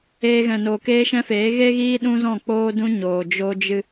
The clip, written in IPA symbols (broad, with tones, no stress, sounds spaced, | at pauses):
eː˧ ɣ ɛ̃˨ n oː˨ k eː˦ ʃ ɛ̃˦ f eː˨˦ ɣ e˦ ɣ iː˦ ɗ ũ˦ z ɔ̃˦˨ k͡p oː˦ d ũ˦ ɲ oː˨ d͡ʒ o˦ d͡ʒ ɨ˦